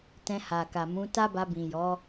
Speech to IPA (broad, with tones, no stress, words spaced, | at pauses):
tɛ̃˧ha˨ka˨ mũ˨˦ ta˦ba˧ bĩ˨jɔ˨˦